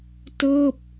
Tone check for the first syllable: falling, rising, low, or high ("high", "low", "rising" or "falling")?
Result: falling